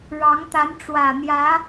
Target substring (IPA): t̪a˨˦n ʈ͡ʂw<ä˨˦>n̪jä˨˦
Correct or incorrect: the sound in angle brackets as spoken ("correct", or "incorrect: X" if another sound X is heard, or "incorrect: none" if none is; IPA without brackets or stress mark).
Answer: incorrect: ä˨˩